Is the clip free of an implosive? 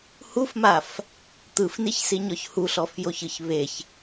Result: yes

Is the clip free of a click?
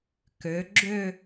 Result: no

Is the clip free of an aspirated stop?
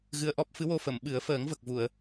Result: yes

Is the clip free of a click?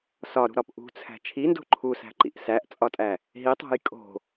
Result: no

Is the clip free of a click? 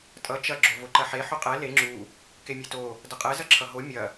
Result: no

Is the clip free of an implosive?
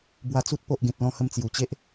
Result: yes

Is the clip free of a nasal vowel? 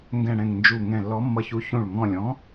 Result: no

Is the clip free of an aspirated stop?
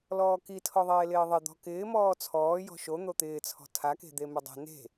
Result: no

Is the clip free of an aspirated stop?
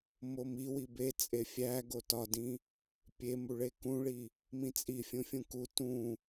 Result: yes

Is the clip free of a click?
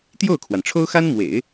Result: yes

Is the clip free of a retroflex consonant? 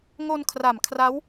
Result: yes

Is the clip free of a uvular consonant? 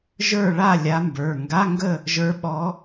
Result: yes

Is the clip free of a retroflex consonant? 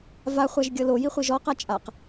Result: yes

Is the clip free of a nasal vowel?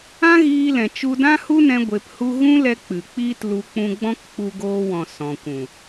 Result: no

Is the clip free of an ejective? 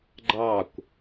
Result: yes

